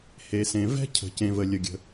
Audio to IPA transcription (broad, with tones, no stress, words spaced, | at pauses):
he˩sẽ˩ vɛ̤˥ cʰə̤˩ cẽ˩ və˩ lʲə˩ɡʲə̤˩